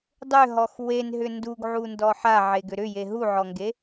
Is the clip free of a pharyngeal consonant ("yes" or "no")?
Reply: no